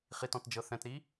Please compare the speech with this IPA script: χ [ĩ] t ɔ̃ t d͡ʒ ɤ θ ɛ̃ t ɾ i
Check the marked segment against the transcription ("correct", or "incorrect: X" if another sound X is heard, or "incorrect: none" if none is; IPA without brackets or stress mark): incorrect: i